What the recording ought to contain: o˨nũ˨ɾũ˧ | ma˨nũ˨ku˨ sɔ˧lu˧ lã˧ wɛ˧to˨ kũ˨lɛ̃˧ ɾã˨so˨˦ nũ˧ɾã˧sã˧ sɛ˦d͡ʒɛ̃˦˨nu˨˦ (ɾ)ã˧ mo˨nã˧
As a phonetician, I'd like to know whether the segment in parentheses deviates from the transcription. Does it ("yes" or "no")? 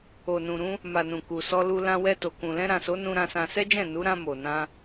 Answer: no